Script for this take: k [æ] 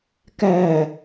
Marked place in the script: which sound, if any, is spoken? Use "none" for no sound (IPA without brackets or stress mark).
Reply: æ